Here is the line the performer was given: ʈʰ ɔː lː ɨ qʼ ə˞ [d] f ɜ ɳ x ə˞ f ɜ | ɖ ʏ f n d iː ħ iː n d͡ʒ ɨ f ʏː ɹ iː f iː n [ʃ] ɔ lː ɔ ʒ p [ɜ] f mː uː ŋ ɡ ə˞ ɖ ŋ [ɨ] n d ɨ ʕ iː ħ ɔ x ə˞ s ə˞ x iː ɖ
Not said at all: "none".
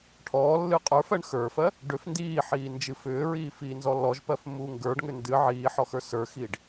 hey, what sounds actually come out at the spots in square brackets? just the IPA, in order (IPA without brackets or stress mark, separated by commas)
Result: none, z, ɜ, ʏ